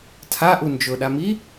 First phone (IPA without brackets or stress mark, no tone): tʰ